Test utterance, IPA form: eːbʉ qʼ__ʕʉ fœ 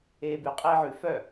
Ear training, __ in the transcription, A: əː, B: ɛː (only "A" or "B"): B